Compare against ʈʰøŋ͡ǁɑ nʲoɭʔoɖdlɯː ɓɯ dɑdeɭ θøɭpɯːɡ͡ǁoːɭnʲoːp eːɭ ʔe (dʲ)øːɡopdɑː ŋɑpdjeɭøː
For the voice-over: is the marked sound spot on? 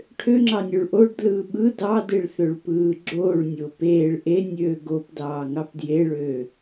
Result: no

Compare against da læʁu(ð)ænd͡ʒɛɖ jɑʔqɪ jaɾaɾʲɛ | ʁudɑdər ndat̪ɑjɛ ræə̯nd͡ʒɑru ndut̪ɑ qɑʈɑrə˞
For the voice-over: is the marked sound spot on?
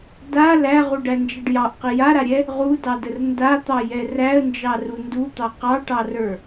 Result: no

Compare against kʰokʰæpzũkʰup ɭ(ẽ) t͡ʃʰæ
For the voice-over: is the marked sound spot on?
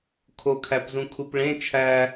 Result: yes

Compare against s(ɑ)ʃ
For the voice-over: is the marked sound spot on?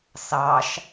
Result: yes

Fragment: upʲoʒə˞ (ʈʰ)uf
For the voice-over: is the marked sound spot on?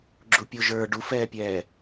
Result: no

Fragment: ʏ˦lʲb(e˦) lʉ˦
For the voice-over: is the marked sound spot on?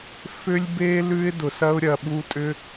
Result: yes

